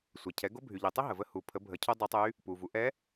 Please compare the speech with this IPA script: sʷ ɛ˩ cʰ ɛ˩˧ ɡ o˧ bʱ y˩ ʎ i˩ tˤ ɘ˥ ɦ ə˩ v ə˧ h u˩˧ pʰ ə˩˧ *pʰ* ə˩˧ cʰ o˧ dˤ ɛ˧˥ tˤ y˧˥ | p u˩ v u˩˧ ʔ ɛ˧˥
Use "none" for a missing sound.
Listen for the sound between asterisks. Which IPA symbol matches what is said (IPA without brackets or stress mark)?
bʱ